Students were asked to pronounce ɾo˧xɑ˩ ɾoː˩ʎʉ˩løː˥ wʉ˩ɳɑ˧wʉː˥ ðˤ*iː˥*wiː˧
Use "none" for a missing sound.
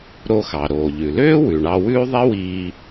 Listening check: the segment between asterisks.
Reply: i˥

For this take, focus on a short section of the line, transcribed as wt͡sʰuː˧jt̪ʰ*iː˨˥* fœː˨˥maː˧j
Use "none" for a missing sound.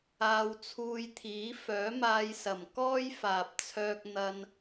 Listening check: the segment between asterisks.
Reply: iː˨˥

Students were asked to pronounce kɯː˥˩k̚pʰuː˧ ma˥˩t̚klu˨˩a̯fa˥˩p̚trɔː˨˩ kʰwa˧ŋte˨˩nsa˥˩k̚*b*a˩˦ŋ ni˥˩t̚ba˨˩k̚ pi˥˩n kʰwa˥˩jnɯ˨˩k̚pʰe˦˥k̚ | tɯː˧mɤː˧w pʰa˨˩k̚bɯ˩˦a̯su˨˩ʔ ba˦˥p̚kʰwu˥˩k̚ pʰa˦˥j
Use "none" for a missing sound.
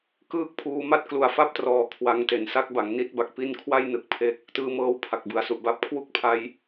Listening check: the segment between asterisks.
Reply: b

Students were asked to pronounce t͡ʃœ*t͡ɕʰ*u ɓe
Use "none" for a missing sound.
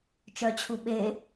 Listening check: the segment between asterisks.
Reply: t͡ɕʰ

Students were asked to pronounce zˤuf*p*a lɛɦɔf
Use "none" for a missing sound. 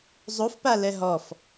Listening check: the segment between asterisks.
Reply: p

